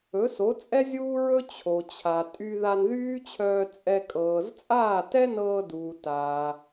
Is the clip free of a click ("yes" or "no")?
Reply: yes